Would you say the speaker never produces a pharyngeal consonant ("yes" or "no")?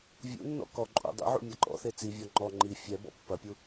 no